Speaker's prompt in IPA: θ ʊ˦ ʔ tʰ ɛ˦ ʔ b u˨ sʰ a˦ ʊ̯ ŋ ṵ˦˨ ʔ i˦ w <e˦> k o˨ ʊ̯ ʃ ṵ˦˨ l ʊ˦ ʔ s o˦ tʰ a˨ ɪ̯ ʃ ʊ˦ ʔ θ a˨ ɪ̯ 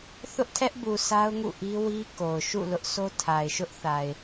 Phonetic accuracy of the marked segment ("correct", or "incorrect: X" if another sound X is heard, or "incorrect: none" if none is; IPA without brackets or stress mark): incorrect: i˦